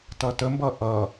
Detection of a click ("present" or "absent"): absent